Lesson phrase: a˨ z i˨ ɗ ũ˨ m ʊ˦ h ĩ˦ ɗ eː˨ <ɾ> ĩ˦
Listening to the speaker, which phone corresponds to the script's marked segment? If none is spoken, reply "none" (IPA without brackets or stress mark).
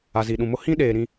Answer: ɾ